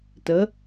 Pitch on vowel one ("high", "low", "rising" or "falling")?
rising